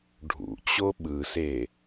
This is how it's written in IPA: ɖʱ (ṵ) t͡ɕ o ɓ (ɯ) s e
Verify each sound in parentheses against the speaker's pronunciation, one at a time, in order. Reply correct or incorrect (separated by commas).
correct, correct